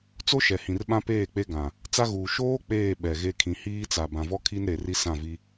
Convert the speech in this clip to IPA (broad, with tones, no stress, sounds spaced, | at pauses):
t͡s o˦ ʃ ɛ˨ h ĩ˨ r ɓ ã˦ p eː˦˨ k͡p e˦ ɡ ã˨ | t͡s a˦ ɣ uː˨ ʃ oː˦ k͡p eː˦˨ ɓ ɛ˨ ɣ e˦ kʰ ĩ˨ h iː˦ t͡s a˨ b ã˨ v ɔ˦ kʰ i˦ n ɾ e˨ r i˦ s ã˦˨ v i˦